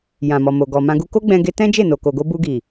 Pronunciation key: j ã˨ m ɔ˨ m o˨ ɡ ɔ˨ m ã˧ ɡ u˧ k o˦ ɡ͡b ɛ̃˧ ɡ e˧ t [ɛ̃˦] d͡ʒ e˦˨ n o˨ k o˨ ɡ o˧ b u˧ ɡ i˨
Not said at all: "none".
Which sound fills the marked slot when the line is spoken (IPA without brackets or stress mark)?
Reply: ɛ̃˦